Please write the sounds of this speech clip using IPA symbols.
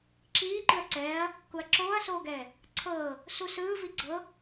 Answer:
ǁiːǃɯɐ̯ ǀɛːɐ̯ | kuɐ̯ǁoːɐ̯soːɡɛː | ǀʰɤː | susɯːvi ɡ͡ǀɤ

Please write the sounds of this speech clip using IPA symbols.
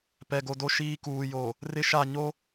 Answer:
pɛ˨ɡo˨do˦ ʃiː˦kuː˨jo˨ | rɪ˦ʃa˦˨ ɲo˦

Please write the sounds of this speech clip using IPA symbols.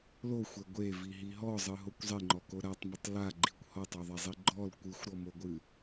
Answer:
loxʷɛ ɡʷeviɦi ɦɔzˤɨɦokʷ zˤeŋ͡ǃɔko ɾatˤmʊtˤ laɡ͡ǃikʷ hɔtˤɔðˤɛzˤi ɡ͡ǃɔl kʷɨxʷɾɔmoɡʷɨ

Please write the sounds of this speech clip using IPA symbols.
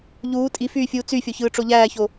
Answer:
ʎuː tʼifyːfʲuː t͡syfʲoçɯːʈ͡ʂo ʎæːço

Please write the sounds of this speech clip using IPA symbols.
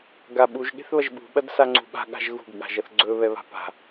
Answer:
ɡaɓuʒ ɠe̤θβɐʒɓṳ ɓɐdsaŋ͡ǀṳɓa̤ ɠa̤ʒɣṳɡ ɠa̤ʒɐθɡ͡ǀɵ βɛβa̤pa̤

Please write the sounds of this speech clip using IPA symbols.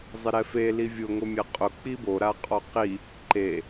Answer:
zˤɪɾɛfe livʲʊ ŋomʲaqʼʊ k͡pibo ɾaqʼɔqi | ǃe

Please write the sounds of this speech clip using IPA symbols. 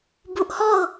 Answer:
buʔhɔʊ̯

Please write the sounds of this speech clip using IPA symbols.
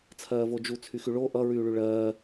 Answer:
t͡sʰɜːvod͡ʒu t͡sʰyxyɭo ʔʌ ɹyːɭyɭɜː

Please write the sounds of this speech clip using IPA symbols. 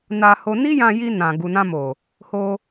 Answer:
na˧ho˧ ni˦jã˧ji˧ nã˨ ɡu˨nã˧mo˨ | ho˧

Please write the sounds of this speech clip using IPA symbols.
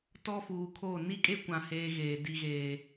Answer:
tɔ˦fuː˨kʰoː˦˨ ni˦kʼe˦kʷã˨ heː˦ɣeː˨ di˨ɣeː˨

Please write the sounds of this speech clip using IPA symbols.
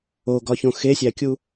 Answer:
oɡɒçõ xesʲækʲu

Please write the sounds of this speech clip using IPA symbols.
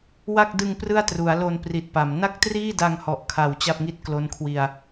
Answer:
wa˥˩k̚dɯ˧ŋ prɯ˥˩a̯tru˩˦a̯lo˧n pri˨˩t̚pa˩˦m na˥˩k̚triː˥˩da˧ŋhɔ˨˩ʔ kʰa˨˩w t͡ɕa˥˩p̚ŋi˥˩t̚ klo˦˥nkʰwi˧a̯

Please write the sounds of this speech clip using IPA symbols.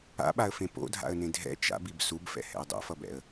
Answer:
a̰ɓaə̯fẽ po̰dʱa̰ə̯nẽ dʱɛ̰ t͡ʃa̰bib subfɛ̰hɛ̰ə̯ dˤo̰fʌbɛ̰ə̯

